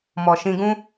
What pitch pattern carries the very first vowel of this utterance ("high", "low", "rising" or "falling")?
low